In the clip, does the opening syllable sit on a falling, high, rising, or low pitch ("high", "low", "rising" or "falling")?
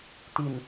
low